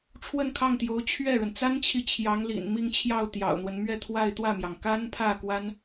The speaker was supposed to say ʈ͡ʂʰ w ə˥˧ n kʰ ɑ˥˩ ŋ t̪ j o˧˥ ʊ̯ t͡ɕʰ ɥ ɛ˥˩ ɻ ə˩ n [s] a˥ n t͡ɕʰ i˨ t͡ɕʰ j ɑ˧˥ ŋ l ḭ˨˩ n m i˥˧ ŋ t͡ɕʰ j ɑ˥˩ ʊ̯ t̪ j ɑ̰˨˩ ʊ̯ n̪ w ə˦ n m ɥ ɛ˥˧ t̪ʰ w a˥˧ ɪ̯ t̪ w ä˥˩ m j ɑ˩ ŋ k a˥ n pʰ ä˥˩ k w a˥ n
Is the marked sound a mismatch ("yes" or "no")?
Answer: yes